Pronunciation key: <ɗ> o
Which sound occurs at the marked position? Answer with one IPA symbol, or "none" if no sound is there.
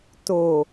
t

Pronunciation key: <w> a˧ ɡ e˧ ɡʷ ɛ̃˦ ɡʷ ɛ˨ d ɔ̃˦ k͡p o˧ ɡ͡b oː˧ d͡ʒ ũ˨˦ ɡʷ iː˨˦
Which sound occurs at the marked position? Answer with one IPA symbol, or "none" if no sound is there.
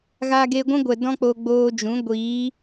ɣ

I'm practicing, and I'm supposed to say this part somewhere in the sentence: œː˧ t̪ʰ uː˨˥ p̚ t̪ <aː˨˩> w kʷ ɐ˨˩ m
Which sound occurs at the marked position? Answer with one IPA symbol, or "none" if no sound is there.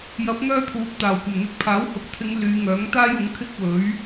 aː˨˩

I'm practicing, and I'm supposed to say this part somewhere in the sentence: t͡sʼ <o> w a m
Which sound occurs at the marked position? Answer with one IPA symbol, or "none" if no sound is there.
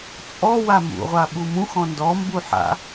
ɔ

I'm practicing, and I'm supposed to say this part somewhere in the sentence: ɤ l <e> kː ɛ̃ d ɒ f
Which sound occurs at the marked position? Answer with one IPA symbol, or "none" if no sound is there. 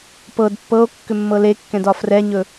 e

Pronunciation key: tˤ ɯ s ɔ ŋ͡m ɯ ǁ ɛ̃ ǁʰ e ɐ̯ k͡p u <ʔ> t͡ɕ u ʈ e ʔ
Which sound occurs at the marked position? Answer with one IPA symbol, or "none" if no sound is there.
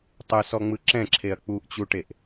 ʔ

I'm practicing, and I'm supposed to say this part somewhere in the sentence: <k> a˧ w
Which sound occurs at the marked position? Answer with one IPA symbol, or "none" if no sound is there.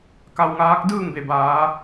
k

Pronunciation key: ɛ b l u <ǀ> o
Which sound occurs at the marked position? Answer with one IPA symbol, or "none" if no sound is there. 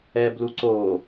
ǀ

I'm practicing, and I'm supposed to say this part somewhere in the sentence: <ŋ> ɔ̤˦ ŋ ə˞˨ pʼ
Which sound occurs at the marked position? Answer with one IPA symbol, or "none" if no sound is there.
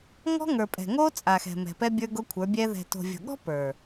ŋ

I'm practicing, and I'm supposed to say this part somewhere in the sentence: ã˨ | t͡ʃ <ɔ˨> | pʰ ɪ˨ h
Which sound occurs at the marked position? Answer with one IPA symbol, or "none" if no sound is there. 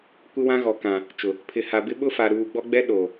ʊ˨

